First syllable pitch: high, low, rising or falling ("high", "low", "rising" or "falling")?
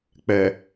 low